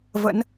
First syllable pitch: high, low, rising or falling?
rising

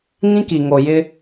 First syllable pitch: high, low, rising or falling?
high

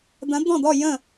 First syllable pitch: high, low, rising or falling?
rising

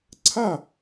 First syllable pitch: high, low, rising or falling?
falling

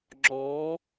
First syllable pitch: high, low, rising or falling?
rising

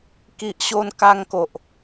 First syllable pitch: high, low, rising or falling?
low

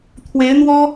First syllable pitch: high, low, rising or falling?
rising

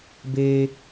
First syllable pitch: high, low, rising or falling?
high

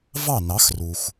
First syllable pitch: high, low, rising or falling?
falling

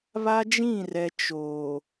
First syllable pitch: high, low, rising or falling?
high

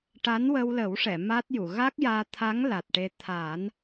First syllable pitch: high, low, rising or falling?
rising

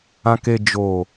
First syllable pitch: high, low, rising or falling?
low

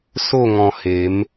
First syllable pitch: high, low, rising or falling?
falling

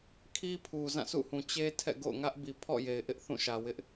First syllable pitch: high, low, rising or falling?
high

